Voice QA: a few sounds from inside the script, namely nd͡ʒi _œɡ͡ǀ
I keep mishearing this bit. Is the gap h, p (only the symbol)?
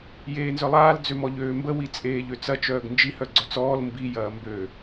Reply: h